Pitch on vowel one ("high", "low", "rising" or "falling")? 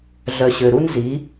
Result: low